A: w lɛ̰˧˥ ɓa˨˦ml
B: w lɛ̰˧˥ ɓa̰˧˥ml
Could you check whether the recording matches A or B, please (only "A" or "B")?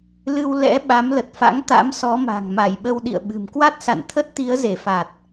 A